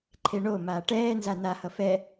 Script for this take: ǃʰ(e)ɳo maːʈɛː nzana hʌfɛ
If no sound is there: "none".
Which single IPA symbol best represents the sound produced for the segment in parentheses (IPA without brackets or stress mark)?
e